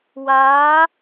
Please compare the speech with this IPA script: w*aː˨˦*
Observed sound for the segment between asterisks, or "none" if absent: aː˨˦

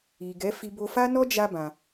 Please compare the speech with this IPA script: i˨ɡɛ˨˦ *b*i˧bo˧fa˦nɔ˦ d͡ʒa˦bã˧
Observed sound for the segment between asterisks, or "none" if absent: f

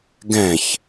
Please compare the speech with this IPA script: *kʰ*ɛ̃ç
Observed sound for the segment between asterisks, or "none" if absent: ɡ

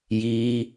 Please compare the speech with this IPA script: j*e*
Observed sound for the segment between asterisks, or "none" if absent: i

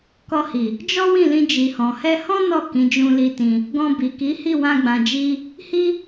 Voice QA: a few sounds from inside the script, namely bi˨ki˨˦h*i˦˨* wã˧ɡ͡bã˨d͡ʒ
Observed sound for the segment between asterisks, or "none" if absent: i˦˨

